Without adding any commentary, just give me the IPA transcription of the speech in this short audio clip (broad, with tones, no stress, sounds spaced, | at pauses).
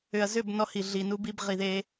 ʏ˨ ɐ̯ z ʏ˦˨ b n ɔ˦ h i˨ ɮ i˨ n u˦ b i˦ b ʁ i˨ ð e˦